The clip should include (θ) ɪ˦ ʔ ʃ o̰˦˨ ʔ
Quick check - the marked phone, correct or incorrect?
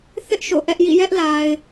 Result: correct